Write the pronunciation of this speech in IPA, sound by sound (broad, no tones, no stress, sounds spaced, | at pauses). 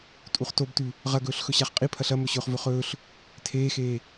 tʼ u χ t o b t ʉ | ʁ ɐ ɡ ɵː ɬ x ɵ ɕ a χ qʼ i pʰ ɐ ɬ ɐ m ɵ ɕ ɵː χ v ɵ χ ɵː ɬ | tʰ eː x eː